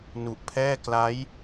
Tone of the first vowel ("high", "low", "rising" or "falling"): low